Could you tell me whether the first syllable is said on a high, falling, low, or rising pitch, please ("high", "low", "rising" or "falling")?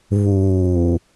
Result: low